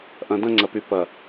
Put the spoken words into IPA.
ʔɐ̃˨dɐ̃˦ŋ͡ǀɐ˨py˨ pɐ˨

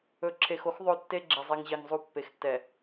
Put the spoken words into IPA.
ɵ˨ǁʰe˨xo˦x ðˤo˦ tːe˦ɡ͡ǁɛ˨zˤɛ˨ŋʑe˨ŋ zˤu˨ pːe˨xtːɛ˨

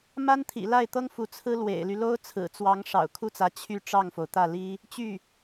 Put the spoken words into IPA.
ma˥nt̪ʰḭ˨˩la˥˩ɪ̯t̪ɤ˥ŋ fu˧˥t͡sʰɹ̩˥ lwḛ˨˩ɪ̯ly˦ lo˥ʊ̯t͡sʰɹ̩˨˩t͡swɑ˧˥ŋ ʂɑ̰˨˩ʊ̯ kʰu˥˩t͡sä˧˥ t͡ɕʰy˥˧ ʈ͡ʂɑ˥˩ŋfo˩ʊ̯t̪ä˥˩li˥ | t͡ɕy˥˩

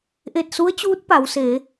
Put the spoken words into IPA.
ʔe˧˩t̚su˧˥ə̯t͡ɕuː˧˥t̚ pa˩˧wseː˩˧

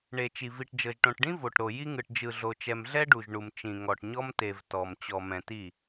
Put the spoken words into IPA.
ɳe˨t͡ʃi˨ vi˨ʈd͡ʒɤ˨ʒʈõ˨ʈɖĩ˦ vo˨ʈɾo˨ ji˦ŋɯ˨ʈ d͡ʒɯ˨ɮo˨t͡ʃɛ˨m ɮɛ˦ɖu˨ʒɳu˨m t͡ʃĩ˨ŋɔ˨ʈ ɲɔ˦mte˨v tɔ˨m t͡ɕɔ˨mɛ̃˨ti˦˨

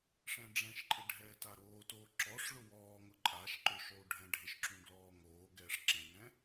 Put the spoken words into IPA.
ʂɛ̃ɖ͡ʐɛ̃ʃǃʼɪ ɖʱɛːtaɾoːtoː ǁɔʂ ɭʊwɔːŋʊ ǃʼaʃ ǃʊʃlˠu ɖʱɛ̃ɖʱɪʃǁũ ɡlɔːŋoːɡɛːʂ ǁɛ̃ŋɛ̃

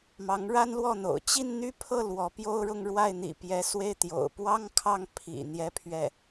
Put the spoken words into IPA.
mɑ˧˥ŋɻa˥nlwɔ˥˩n̪o̰˨˩ʊ̯ t͡ɕi˥˧nn̪y˥˧pʰɤ˥˩ lwɔ˧˥pjo˥ʊ̯ɻʊ˥˧ŋ ɻwa˥˩ɪ̯ n̪ḭ˨˩pjɛ˧˥swe˥˩ɪ̯ t̪jo̰˨˩ʊ̯pwɑ˥ŋkʰɑ˥˩ŋ pʰḭ˨˩ n̪jɛ˥˧pʰɥɛ˥˩

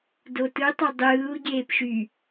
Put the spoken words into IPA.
dotɯtˤɑ dˤɯːu̯ɟeːp ʃy

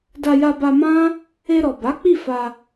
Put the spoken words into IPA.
da˧ja˧ba˧ mã˦ | e˧ɾɔ˨ba˨˦k͡pi˦˨ fa˧

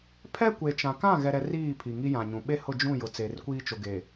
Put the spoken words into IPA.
pʰɛ˦kʷe˨t͡ʃã˨ kã˦˨ɣɛ˨ɾɛ˨ riː˦˨ pʰi˨ŋi˦jã˨ɲũ˨ ɓe˦hʊ˦˨d͡ʒũ˦˨ jʊ˨t͡seː˨rkʷiː˦ t͡ʃo˨ ɡe˨

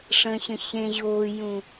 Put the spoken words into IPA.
ʂə̃ɕə̃ ɕẽ ʑoːjũ

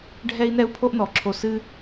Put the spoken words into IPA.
ɖʱɛ˦i̯nɛ˦u̯ pʰo˦ʔnɔ˨˦ǁʰo˧ sɨ˦

